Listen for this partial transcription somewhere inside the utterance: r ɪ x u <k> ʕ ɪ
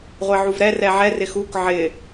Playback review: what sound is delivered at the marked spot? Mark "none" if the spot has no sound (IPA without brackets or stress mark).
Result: k